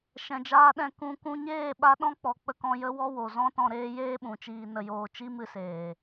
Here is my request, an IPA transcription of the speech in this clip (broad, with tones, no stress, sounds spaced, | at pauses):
ʃ ɛ̃˨ d͡ʒ aː˧ ɗ ɛ̃˧ k ũ˧ k ũ˧ ɲ eː˦˨ ɓ a˧ ɗ ɔ̃˦ k͡p ɔ˨ k͡p ə˧ k ɔ̃˧ j ə˦ w ɔ˦ w o˨ z ɔ̃˦ t ɔ̃˧ ɾ eː˦ j eː˦ ɓ ũ˨ t͡ʃ iː˧ n ə˧ j oː˧ t͡ʃ i˦ m ɨ˧ s eː˨